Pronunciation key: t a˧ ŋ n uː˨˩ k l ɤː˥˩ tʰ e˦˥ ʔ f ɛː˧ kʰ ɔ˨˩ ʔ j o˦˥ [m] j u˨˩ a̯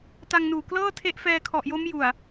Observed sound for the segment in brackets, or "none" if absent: m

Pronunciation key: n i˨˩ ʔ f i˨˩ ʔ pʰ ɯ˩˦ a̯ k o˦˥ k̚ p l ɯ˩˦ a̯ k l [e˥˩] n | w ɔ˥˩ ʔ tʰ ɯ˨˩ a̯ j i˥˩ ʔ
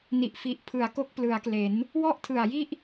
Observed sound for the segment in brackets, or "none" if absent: e˩˦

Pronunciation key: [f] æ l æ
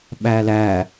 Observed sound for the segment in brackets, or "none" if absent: ɓ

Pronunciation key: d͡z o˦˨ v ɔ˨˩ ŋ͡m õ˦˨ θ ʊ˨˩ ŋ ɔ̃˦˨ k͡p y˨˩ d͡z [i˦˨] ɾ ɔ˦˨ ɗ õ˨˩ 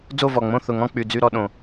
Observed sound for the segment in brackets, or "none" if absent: y˦˨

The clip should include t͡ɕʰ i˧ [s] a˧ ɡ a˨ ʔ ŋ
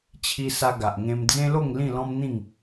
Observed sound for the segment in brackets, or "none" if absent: s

